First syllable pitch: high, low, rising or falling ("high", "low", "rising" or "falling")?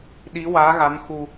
rising